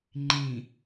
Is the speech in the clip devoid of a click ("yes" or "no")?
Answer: no